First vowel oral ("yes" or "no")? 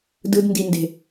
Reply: yes